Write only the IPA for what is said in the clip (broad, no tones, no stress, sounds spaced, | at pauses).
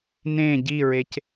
n ẽ ɟ i ɹ e c